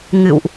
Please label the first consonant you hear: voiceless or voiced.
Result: voiced